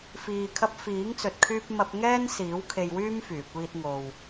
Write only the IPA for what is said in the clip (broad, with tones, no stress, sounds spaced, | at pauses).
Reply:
f iː˨ kʰ ɐ˧ p̚ f iː˨˥ ŋ t͡s ɵ˨ t̚ kʰ yː˧ p̚ m ɐ˧ p̚ ŋ ɛː˥ n s iː˨˥ w kʰ e˧ j w yː˥ m f yː˨˩ kʷ iː˧ t̚ ŋ o˨ w